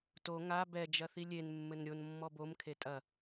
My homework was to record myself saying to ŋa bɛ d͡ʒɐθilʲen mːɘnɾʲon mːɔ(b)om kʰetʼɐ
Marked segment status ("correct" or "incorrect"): correct